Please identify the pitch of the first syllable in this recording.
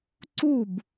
falling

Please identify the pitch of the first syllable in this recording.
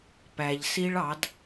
low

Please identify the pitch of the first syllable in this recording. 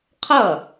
falling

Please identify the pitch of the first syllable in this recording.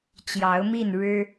rising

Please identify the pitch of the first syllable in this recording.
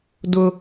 high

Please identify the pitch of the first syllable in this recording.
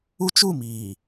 high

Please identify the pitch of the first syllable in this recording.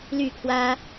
falling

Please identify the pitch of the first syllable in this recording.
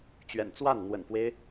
low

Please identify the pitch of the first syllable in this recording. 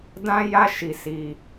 high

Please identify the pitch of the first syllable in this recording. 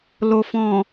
low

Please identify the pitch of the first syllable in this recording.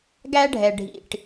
high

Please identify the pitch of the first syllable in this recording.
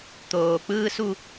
low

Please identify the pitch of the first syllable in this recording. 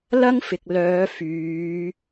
high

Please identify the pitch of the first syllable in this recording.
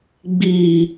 low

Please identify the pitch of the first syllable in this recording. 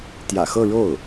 low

